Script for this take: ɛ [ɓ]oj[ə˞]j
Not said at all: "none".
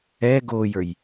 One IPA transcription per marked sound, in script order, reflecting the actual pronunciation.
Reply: ɡ, ə˞

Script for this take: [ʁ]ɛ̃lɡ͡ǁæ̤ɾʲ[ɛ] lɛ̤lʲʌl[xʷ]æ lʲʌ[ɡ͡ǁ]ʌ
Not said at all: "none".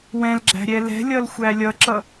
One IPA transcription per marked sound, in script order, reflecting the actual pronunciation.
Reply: w, ɛ, xʷ, ǁ

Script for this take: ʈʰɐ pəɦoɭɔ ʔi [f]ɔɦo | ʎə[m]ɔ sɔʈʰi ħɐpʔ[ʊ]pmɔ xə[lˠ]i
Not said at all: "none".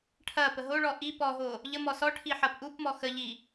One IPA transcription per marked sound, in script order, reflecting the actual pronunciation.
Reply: p, m, u, ʎ

